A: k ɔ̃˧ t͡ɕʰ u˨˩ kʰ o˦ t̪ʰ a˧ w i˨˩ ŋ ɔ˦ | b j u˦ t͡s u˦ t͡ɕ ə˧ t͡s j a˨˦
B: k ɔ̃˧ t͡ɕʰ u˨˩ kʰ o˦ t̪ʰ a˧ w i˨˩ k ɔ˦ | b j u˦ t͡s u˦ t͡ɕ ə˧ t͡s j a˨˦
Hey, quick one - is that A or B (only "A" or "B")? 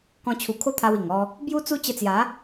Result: A